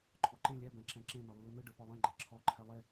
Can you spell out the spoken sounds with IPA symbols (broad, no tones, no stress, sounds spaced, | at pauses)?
ǃʰ ɔ ǃ ẽ lʲ ɛ b ɛ̃ ǁ ɛ̃ ǁ ẽ n ɔ lː ɯ n̪ ɯ ɖ ɯ p ɔ lˠ ẽ ɡ͡ǃ ɛ ǁʰ ɔ ǃʰ ɛ lˠ e